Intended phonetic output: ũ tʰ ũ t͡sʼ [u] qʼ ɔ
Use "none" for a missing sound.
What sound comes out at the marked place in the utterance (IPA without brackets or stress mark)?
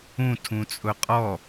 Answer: ʊ